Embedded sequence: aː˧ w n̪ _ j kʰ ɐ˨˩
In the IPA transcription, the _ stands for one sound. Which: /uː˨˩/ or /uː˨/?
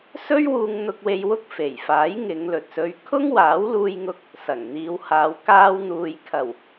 uː˨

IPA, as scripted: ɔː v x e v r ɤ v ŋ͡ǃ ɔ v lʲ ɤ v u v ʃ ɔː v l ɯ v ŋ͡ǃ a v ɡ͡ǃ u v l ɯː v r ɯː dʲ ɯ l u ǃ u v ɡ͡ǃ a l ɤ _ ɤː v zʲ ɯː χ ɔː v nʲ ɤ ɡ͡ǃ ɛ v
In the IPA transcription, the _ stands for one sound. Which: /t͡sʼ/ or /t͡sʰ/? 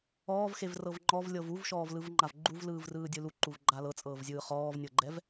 t͡sʼ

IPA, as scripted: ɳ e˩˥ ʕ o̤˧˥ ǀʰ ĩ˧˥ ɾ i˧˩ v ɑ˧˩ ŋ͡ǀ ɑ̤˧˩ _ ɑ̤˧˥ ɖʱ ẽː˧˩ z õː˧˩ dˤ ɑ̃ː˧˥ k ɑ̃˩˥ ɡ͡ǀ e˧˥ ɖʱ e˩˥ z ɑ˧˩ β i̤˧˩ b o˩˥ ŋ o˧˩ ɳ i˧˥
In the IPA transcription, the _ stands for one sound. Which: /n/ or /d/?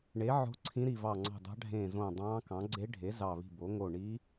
d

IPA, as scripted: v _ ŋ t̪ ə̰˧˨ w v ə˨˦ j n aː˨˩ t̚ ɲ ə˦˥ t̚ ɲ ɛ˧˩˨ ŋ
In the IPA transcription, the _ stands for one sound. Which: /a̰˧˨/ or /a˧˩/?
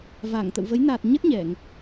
a˧˩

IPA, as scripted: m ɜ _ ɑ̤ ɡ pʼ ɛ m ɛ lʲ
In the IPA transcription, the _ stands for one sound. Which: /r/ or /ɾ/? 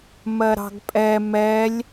ɾ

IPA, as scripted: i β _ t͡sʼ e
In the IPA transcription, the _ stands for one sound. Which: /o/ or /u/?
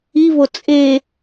o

